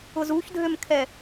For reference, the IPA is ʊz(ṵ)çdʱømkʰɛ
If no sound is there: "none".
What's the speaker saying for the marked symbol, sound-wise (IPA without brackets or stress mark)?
u